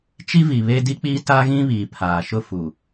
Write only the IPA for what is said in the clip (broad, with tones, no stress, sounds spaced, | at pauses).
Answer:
t͡ʃ i˦ v i˨ β e˦ d i˦ k͡p iː˦ t a˦ ɣ ĩ˦ β iː˨ pʰ aː˨ ʃ ʊ˦ f u˨